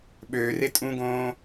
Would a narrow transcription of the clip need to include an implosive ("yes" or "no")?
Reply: yes